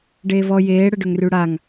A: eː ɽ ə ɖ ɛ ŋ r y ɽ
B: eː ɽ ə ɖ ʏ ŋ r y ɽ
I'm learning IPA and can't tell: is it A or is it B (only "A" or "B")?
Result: B